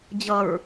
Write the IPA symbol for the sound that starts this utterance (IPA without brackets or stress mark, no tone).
d͡ʑ